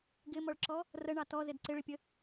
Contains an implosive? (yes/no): no